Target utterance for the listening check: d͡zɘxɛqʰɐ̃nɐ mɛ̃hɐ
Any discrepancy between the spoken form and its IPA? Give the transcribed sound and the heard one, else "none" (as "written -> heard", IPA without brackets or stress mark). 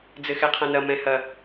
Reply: none